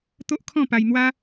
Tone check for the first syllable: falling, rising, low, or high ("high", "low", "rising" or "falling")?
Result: high